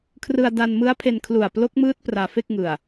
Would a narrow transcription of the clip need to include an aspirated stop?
yes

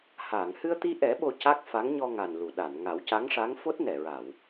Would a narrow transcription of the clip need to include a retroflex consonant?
yes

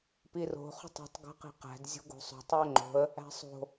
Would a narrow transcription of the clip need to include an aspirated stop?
no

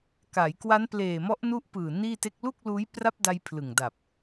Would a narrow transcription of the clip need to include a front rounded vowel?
no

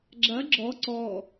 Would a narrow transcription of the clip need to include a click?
yes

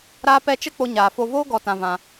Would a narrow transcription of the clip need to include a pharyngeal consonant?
no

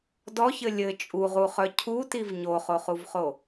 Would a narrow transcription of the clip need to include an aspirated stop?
yes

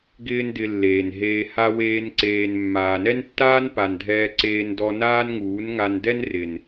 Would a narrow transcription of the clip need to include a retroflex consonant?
no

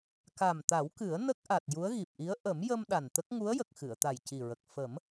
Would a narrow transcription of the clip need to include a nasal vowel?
no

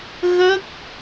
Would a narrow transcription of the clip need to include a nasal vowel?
no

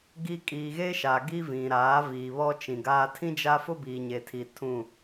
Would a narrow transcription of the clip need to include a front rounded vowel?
no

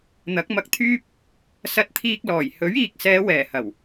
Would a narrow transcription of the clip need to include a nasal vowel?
no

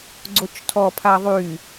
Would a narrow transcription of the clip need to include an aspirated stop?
yes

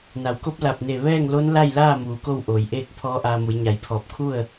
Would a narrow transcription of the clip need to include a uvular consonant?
no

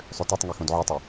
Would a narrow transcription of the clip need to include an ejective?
no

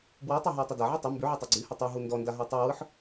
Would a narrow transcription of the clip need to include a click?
yes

